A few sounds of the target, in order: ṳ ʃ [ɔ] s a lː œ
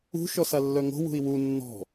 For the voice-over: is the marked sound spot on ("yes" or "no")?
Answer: yes